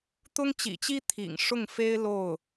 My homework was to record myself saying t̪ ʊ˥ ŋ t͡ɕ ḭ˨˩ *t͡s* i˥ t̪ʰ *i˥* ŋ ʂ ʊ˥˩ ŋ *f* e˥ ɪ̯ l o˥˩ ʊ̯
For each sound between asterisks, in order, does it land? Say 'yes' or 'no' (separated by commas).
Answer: no, no, yes